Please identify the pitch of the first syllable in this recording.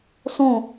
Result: falling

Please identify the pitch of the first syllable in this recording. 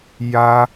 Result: high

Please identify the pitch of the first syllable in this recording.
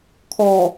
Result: low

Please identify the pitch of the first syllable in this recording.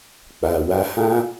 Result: low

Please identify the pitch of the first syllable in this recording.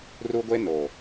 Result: high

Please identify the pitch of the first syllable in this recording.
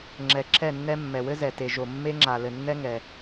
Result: low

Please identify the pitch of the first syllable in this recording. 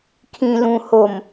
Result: low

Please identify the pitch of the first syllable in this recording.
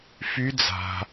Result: rising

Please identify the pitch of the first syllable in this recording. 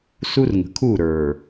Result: high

